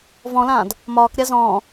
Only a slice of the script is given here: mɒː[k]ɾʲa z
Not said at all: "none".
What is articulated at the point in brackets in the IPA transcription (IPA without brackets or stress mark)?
k